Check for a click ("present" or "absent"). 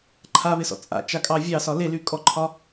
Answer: present